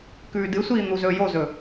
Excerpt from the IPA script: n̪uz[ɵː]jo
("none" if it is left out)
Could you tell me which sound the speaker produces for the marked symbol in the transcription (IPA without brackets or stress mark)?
ɵː